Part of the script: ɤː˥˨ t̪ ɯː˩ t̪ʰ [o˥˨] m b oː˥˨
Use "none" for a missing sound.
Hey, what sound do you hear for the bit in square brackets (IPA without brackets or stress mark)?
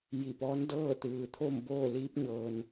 o˥˨